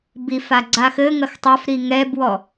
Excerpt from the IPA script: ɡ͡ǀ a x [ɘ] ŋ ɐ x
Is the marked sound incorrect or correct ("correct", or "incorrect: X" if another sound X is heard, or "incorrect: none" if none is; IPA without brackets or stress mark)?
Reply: correct